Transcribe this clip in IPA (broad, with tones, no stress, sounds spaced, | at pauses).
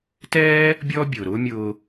t ɛː˥ | bʲ ɔː˥ bʲ ʊː˩ ɾ ʊː˥ mʲ ʊː˧